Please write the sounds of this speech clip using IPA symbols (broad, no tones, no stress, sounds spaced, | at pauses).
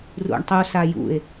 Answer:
r ṵ ɳ tˤ u s a j ṵ e̯